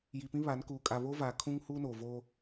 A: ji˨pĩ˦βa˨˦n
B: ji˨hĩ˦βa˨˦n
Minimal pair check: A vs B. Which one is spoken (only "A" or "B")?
A